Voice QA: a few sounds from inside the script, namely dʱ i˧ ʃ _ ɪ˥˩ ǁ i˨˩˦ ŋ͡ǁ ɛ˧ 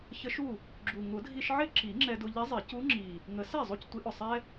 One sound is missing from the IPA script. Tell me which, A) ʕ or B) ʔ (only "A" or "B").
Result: A